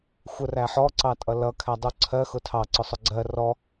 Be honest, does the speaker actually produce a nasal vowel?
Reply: no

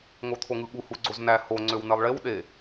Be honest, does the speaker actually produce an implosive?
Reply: yes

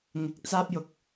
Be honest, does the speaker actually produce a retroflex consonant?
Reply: no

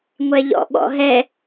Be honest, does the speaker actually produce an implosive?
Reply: yes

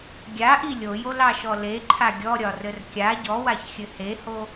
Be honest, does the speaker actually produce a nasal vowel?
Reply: no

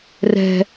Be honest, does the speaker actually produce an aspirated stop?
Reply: no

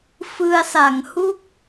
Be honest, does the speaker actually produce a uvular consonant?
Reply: no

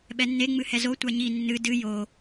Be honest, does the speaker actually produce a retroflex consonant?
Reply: no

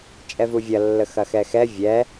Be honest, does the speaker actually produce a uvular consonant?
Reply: no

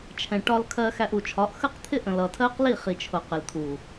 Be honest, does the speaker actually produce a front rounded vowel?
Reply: no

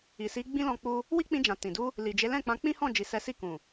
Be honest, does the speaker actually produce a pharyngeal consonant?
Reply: no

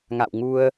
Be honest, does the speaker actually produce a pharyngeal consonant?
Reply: no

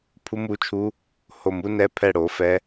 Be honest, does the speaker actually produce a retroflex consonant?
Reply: yes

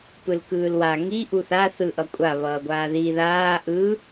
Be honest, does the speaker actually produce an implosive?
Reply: no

